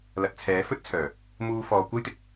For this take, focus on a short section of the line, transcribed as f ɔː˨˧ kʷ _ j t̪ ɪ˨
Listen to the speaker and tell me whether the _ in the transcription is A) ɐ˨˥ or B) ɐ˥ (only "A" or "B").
B